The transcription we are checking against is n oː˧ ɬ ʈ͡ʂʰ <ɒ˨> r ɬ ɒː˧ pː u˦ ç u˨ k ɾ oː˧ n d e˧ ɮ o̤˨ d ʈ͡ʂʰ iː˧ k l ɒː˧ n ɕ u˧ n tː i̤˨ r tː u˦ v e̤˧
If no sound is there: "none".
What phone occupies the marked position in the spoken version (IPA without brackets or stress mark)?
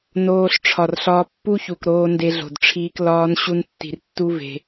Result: ɒ˨